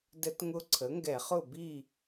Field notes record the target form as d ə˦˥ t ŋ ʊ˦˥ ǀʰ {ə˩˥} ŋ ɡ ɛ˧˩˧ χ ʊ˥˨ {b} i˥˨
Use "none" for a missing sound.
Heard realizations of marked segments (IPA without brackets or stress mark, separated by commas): ə˩˥, b